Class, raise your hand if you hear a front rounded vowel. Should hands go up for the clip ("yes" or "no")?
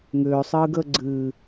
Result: yes